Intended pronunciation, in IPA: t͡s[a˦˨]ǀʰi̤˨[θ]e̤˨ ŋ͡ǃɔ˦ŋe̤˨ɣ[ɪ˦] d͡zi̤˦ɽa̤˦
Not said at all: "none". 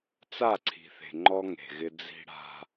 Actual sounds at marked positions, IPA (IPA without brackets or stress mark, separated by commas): a˦˨, θ, ɪ˦